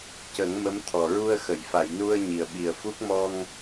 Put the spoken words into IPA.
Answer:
c ə˨˩˦ ŋ m ə˧˥ m t̪ʰ ɔ˨˩ ɹ u˧ ə̯ x ə˨˩˨ j f a˨˩˨ j n u˧ ə̯ ɲ i˨˩ ə̯ ɓ i˨˩ ə̯ f u˦˥ k̚ m ɔ˧ ŋ

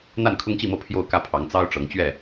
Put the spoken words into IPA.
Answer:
n̪ a˥˨ n kʰ ʊ˦ ŋ t͡ɕ i˥˨ m ɤ˥˨ pʰ j o˥˨ ʊ̯ k ä˥˨ pʰ ɑ˨˦ ŋ t͡s ɑ˦ ʊ̯ ʈ͡ʂ ɤ˨˦ ŋ t͡ɕ ɥ ɛ˥˨

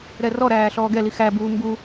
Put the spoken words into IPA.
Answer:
ɾ ɛ r ɔ ɾ æː ɬ ɔː ɡ ɛ l i x æ b uː m b u

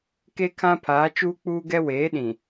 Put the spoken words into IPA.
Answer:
k e˦ kʰ ã˦ pʰ aː˨˦ t͡ʃ uː˦ k͡p uː˦ ɡ ɛ˦ w eː˨˦ ɗ ĩ˨

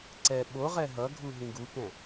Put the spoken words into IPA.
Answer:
ǀ ɛ ɓ o ʁ ɛ ɦ ʌ ɡʱ u ɦ ĩ ɡ u k ɛ̃

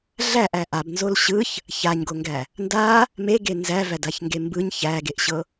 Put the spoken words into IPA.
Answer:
ɮ æ ʔ æ ʔ a b n z o l ɕ ɯ ç | ç a ɲ ɡ o ŋ ɡ æ | n d a | m e ɡ e n z æ v æ d a ç ŋ ɡ e m b ɯ ɲ ç æ ɡ e ʔ ɕ ɤ

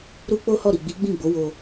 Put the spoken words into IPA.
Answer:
ɾ u˦ k͡p o˦ h ɔ˦˨ ɾ i˨ ɡ͡b i˨˦ ɡ͡b ĩ˦˨ ɡ͡b o˨˦ w o˧

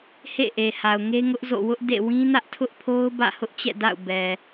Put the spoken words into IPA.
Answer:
h ḛ˦˨ ʔ e˨ h a˨ ʊ̯ ŋ e˦ ŋ ʊ˦ ʔ z o̰˦˨ w ʊ˦ ʔ d ḛ˦˨ w ĩ˦ n ä˦ ʔ tʰ ʊ˦ ʔ pʰ o˦ ʊ̯ b ä̰˦˨ h ʊ˦ ʔ t͡ɕ ɛ̰˦˨ d a̰˦˨ ʊ̯ b ɛ˨

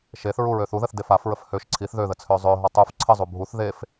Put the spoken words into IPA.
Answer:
ʃ e θ ɹ u ɹ ø θ u ð ə θ d e f a f ɹ ə f h ø ʃ ǀʰ i θ ð ø ð ə t͡sʰ ø zˤ ø ɦ ɔ tˤ u f ǀʰ ə zˤ u bʱ u θ ð e f

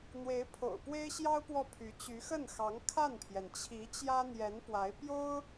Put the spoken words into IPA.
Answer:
n̪ w e˧˥ ɪ̯ pʰ o̰˨˩ ʊ̯ p w e˥ ɪ̯ ɕ j ɑ˥ ʊ̯ p w ɔ˥˩ pʰ y˧˥ t͡ɕ y˧˥ x ə˥˩ n x ɑ˧˥ ŋ kʰ a˥˩ n pʰ j ɛ˩ n t͡ɕʰ i˧˥ t͡ɕ j ä˥ n̪ j ɛ˧˥ n p w a˧˥ ɪ̯ p j o˥ ʊ̯

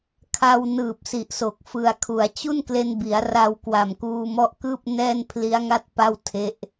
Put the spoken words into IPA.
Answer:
kʰ a˧ w n ɯː˨˩ p̚ s i˨˩ ʔ s o˨˩ k̚ f ɯ˨˩ a̯ kʰ u˩˦ a̯ t͡ɕ u˥˩ n k l e˧ n b i˩˦ a̯ r a˧ w k w a˨˩ m k uː˧ m ɔ˦˥ ʔ k ɯː˥˩ p̚ n ɛː˥˩ n pʰ l i˦˥ a̯ ŋ a˥˩ t̚ p a˥˩ w tʰ e˦˥ ʔ

